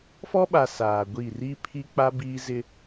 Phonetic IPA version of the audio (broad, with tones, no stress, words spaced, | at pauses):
fɔ˦ɓa˨ saː˨ɡʷi˦˨ riː˦pʰi˦k͡pa˦ biː˦zɪ˦